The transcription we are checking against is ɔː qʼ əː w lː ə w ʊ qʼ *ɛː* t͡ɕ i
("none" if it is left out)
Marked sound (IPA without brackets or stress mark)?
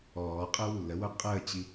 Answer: əː